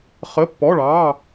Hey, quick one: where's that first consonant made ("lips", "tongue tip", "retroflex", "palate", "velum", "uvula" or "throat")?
uvula